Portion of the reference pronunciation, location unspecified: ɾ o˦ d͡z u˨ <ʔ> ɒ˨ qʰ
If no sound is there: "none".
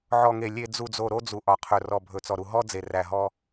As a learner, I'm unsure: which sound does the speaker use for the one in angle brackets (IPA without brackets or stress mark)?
ʔ